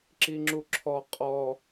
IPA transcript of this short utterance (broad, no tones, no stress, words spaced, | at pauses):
ǁiŋ͡ǁuǁʰɔ qʼɔ